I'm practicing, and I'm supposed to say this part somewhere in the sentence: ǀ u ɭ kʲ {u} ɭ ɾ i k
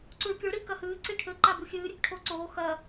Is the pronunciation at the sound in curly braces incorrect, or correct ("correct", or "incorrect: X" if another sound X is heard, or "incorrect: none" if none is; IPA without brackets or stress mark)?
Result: incorrect: o